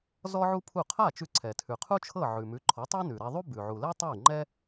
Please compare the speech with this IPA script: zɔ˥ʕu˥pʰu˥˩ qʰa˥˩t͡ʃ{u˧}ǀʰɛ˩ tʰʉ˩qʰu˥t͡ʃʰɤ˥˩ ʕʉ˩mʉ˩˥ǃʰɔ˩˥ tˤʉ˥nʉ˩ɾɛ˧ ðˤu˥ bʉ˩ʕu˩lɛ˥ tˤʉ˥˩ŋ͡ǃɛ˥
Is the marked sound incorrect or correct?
incorrect